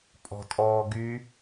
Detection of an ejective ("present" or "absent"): present